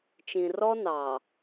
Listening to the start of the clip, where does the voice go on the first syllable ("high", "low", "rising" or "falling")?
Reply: low